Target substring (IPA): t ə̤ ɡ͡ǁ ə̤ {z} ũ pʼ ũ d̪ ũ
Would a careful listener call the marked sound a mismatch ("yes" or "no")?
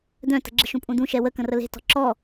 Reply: yes